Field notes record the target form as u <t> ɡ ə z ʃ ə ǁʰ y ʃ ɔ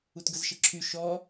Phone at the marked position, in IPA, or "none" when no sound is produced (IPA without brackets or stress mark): t